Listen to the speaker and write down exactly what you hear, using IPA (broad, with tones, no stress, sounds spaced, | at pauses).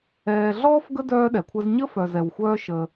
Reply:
ɛː˨ ɮ ɔː˥ f ɡ ə˥ d œː˦ ɗ ɛ˩ kʷʰ ə˦ z ɲ ə˥ f œ˨ z ɛ˨ w xʷ œː˦ ʃ ə˨